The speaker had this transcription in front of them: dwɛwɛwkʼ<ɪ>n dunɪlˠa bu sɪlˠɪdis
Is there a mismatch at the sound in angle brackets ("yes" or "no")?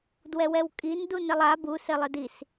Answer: yes